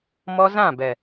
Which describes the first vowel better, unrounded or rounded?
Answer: rounded